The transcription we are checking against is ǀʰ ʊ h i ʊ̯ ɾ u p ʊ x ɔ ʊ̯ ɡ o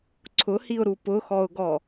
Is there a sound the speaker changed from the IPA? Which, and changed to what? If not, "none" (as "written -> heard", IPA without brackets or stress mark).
o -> ɔ